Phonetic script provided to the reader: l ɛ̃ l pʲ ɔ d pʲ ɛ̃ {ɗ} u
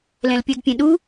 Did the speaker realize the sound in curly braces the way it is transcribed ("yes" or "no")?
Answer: yes